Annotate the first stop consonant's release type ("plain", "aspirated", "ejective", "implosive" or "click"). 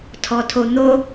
aspirated